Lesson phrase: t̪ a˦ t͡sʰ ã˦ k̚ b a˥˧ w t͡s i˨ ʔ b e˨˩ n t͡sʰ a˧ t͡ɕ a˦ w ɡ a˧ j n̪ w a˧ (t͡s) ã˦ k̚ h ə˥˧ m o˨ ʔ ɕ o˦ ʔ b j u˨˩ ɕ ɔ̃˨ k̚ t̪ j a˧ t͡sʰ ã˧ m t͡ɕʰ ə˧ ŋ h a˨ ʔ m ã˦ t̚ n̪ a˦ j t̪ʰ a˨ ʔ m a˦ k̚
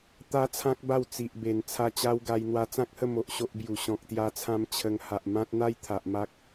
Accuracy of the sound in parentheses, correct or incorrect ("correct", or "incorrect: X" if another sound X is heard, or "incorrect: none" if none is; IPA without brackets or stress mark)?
correct